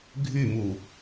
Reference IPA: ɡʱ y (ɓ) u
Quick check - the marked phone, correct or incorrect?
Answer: incorrect